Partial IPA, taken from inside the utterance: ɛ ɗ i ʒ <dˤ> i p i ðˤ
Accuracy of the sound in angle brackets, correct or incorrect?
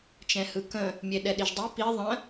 correct